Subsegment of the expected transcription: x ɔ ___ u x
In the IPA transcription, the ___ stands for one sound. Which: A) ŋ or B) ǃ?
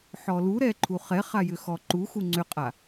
B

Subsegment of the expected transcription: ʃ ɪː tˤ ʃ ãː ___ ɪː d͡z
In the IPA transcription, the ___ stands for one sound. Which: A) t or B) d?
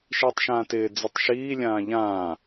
A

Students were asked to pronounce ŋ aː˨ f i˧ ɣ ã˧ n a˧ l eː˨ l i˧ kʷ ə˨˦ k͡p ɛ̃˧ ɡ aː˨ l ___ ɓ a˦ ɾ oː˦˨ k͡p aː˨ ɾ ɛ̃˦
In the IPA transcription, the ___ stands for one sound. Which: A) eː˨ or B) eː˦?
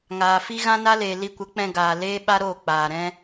B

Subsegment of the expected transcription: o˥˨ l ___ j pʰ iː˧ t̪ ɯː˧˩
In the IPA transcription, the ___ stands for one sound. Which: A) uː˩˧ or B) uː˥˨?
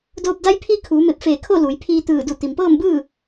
A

